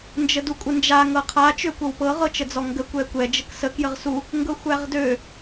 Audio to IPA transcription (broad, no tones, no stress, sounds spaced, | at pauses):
n d͡ʒ ə d u kʷʼ ə n d͡ʒ a ŋ ɤ qʰ a t͡ʃ ø kʷ ɤ w p ɤ ʁ ɤ t͡ʃ ə d͡z ɔ ŋ ɡ ə kʷ ɛ kʷ ɛ d͡ʒ ə k s ə k j ə ʁ s u | ŋ ɡ ɤ xʷ æ ʁ d ø